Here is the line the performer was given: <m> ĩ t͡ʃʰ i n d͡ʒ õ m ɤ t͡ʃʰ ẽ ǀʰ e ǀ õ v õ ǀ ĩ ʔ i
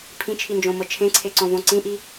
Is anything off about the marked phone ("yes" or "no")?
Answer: yes